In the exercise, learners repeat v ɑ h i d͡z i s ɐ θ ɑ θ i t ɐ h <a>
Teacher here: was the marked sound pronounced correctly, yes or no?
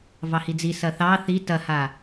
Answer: yes